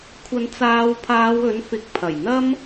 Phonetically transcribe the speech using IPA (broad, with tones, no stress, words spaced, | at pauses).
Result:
kʷʰɐ˨˧nt͡saː˨˧wpʰaː˨˧w ɵ˨˥nfɪ˨˥k̚pʰɐ˨˩jn̪ɐ˥m